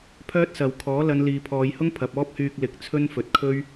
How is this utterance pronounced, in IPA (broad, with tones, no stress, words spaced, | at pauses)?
pʰœː˥t̚sɐ˨w kʰɔː˨˥ lɐ˨˧nliː˨pʰɔː˨˧jhʊ˥ŋ pʰɐ˨p̚ɔː˥p̚hyː˧k̚ lɪ˨˥k̚t͡sʰɵ˥nfɵ˨t̚kʰɵ˥ɥ